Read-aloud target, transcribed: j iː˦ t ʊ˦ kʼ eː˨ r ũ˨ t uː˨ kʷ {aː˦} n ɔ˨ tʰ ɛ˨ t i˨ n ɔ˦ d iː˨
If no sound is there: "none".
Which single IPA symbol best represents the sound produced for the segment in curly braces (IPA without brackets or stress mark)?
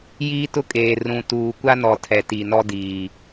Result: a˦